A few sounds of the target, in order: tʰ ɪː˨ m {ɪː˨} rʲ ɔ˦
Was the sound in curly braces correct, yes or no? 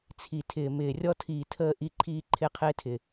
yes